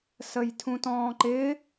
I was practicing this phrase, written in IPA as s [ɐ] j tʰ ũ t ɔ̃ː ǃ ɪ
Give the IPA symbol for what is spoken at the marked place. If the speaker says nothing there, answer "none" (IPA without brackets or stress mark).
ə